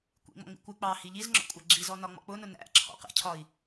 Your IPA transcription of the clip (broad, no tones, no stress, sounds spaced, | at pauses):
kʷ ḭ ŋ͡m ɔ̰ ŋ͡m ḭ kʷ ɪ k͡p ɑ h i ʎ i z ŋ͡ǁ ɔ̰ kʷʼ æ ɡ͡ǁ i z ɔ n ɒ ŋ͡m ɔ̰ k͡p ʊ n ʊ n æ̰ ǁʰ ɔ̰ q ɛ̰ cʰ ɒ i̯